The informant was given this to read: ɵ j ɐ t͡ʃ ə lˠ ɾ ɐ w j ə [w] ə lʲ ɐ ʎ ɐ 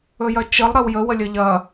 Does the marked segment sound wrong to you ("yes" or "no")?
no